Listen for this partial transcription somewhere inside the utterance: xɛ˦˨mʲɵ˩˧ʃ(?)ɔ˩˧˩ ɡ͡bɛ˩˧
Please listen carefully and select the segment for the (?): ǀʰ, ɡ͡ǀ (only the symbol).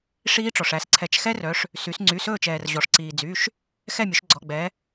ɡ͡ǀ